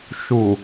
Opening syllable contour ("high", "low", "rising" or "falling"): low